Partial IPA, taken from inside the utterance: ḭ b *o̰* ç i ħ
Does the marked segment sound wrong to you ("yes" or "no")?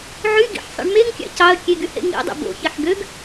no